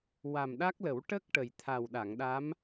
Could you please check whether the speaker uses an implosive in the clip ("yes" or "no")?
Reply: yes